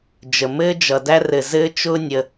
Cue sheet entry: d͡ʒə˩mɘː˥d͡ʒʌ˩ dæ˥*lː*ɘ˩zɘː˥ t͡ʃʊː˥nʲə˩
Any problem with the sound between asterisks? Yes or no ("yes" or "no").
yes